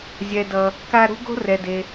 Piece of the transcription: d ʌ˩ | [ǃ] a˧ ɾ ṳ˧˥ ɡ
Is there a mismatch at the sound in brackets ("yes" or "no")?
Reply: yes